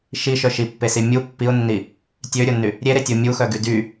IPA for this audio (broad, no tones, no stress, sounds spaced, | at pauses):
ʃ i ʃ œ ʃ i pː e s i mʲ u pː i ʊ̯ nː i | tʲ ø ɾʲ o nː y | ɾʲ e ɾ e tʲ o mʲ u x œ ɡ y d y